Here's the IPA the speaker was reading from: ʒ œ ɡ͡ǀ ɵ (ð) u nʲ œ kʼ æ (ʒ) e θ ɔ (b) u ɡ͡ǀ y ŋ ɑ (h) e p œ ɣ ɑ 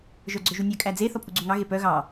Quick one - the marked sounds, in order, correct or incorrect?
incorrect, incorrect, incorrect, incorrect

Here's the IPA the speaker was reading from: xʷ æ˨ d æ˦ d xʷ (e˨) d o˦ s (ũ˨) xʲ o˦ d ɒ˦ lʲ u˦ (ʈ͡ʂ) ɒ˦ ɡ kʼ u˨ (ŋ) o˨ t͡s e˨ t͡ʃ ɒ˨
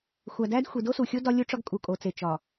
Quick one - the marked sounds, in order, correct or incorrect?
incorrect, incorrect, correct, incorrect

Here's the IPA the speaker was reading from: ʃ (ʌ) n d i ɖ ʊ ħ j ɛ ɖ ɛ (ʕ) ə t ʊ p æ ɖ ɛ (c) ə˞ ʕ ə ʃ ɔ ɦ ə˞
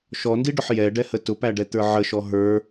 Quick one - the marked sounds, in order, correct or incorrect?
incorrect, incorrect, incorrect

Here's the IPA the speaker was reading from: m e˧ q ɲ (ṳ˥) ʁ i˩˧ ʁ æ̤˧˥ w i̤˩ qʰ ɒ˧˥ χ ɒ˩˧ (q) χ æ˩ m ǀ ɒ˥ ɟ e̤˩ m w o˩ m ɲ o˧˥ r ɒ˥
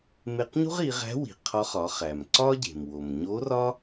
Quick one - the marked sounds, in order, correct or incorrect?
correct, incorrect

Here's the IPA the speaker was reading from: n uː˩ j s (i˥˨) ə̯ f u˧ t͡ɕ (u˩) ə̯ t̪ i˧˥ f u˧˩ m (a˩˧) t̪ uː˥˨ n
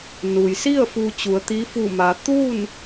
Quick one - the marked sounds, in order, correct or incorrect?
correct, incorrect, correct

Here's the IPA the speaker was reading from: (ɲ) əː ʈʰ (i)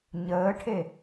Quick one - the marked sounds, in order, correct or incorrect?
correct, incorrect

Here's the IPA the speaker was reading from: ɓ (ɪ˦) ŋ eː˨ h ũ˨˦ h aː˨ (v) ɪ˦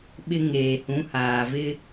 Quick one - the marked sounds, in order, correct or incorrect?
correct, correct

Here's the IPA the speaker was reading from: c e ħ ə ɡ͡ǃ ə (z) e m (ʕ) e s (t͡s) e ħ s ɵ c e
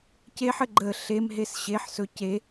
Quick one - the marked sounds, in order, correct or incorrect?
incorrect, incorrect, incorrect

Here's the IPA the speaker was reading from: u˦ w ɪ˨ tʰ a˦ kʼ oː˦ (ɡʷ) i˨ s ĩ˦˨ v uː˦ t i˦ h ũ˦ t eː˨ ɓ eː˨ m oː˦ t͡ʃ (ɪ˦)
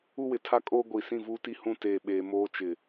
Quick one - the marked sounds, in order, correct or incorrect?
correct, incorrect

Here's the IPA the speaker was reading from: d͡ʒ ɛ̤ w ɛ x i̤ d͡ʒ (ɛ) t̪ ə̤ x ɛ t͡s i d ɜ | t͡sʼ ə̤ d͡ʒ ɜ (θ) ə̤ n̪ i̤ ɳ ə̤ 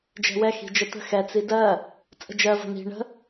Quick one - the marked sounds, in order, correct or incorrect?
incorrect, incorrect

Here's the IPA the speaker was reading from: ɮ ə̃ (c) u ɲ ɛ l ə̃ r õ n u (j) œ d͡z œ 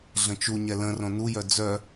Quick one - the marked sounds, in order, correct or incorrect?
incorrect, correct

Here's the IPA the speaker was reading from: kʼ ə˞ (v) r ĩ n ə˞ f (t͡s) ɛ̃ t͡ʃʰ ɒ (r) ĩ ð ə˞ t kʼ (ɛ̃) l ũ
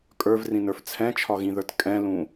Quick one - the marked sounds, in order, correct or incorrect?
correct, incorrect, incorrect, correct

